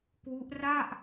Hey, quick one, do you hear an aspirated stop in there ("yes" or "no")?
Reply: no